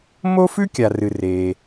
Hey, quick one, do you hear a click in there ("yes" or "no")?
no